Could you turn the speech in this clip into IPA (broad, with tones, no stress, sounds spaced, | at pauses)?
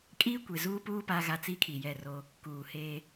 kʼ iː˦ kʷ e˨ z uː˦ p uː˦ p a˦ ɣ a˦˨ t͡s i˦ kʰ i˨ j ɛ˦˨ r o˦ | k uː˨ h eː˦